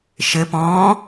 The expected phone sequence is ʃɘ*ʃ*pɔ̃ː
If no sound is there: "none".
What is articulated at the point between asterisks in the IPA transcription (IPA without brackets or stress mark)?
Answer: none